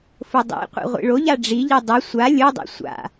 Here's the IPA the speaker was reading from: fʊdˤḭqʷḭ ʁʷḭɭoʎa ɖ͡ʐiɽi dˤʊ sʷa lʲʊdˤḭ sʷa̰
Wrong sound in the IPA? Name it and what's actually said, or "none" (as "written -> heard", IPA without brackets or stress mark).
ɽ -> ʎ